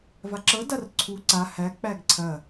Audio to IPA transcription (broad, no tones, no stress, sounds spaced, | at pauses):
v a ǁ ɤ d a r ǀʰ u ǀ a h æ k͡p æ ɡ ǀʰ ɐ